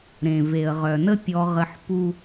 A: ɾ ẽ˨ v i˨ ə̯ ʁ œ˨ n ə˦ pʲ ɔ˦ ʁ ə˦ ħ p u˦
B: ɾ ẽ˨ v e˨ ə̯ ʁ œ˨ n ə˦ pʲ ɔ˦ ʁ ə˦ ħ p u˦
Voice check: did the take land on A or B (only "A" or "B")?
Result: B